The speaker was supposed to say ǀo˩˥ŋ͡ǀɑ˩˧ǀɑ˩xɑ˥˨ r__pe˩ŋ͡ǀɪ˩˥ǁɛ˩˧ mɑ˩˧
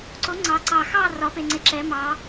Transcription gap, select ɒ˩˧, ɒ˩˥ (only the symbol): ɒ˩˧